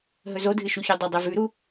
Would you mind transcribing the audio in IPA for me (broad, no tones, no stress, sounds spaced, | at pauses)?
ɦ ɵ z o dʱ ɨ ʃ u ç o dˤ ɵ dˤ e v ʉ ɾ u